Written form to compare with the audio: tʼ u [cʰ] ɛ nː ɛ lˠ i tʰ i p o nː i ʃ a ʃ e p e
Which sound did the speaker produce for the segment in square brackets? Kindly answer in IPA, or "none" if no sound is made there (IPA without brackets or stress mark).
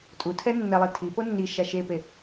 tʰ